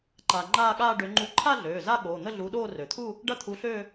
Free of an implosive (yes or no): no